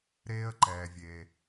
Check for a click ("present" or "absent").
present